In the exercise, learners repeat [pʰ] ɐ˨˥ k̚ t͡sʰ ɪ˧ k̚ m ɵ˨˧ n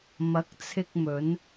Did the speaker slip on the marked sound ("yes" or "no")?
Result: yes